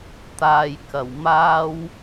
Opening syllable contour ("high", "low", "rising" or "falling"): low